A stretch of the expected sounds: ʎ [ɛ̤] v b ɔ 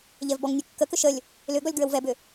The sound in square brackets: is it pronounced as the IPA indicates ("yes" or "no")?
no